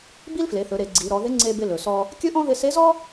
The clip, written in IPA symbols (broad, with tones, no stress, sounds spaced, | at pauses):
b i˥ l f l e˩˧ θ ɵ˩˧ ɾ e˩˧ ɡ͡ǀ i˩˧ ɾ ɔ˩˧ ð ɪ˧˥ ŋ͡ǀ e˧ b ɪ˧ l ɵ˩ s ɔ˧ | kʲ ɵ˥ ʔ ɔ̃˥ ð ɪ˧ s e˧˥ z ɔ˥